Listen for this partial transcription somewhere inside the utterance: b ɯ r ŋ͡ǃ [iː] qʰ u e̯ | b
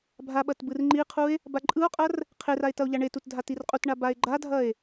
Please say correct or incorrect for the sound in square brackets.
incorrect